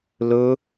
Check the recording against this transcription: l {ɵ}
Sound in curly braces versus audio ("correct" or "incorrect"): correct